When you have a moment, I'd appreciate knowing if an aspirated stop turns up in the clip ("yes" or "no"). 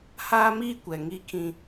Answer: yes